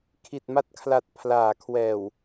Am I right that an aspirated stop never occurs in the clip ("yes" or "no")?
no